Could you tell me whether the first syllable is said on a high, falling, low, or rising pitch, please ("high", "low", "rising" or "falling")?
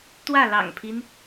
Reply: falling